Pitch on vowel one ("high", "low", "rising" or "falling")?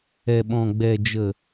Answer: low